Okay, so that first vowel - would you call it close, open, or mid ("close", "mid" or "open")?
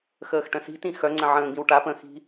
mid